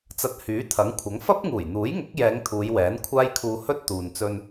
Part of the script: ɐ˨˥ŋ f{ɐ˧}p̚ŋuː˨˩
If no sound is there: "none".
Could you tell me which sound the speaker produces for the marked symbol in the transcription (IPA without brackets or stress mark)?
ɐ˥